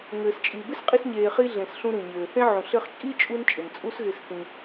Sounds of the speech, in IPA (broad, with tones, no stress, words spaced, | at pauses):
ŋɘː˨st͡ʃʼi˨ bɪ˦sqʼi˧sɲeː˨χi˧ ɮẽ˨sɬũ˧ ɾĩ˨ɲɘː˨θẽ˦ ʕũ˨ɬɘ˧χt͡ʃʼi˦ t͡ʃʼu˦n t͡ʃʼɪ˨nt͡sʼu˦sɣɪ˧sθĩ˧